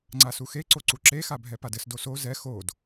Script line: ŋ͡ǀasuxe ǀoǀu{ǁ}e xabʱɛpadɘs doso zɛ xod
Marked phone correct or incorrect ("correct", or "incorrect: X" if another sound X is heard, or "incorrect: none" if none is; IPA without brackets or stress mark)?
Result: correct